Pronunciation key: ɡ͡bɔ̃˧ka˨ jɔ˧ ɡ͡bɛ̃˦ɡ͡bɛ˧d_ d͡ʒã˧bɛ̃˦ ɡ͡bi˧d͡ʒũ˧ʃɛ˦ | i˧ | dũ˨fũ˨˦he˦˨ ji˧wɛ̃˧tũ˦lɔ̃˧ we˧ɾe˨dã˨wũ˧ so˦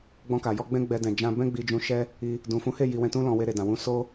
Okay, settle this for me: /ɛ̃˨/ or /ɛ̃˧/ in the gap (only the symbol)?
ɛ̃˨